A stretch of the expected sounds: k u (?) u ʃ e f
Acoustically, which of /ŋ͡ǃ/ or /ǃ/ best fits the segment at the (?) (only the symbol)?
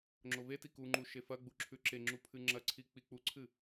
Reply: ŋ͡ǃ